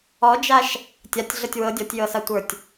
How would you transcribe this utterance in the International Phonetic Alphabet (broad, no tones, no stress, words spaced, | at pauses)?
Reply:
ɔd͡ʒaʃ | tʲatʲɮɤtʲ wɤ dʲɔtʲjɤsatʷə˞tʲ